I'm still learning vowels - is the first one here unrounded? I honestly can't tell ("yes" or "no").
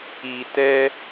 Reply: yes